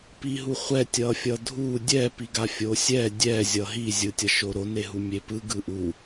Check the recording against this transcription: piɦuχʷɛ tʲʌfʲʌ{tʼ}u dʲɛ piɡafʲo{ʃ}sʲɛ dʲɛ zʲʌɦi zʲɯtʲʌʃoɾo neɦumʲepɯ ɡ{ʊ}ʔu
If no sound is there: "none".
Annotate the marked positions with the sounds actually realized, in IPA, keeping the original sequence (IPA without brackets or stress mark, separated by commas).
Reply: dʱ, none, ɯ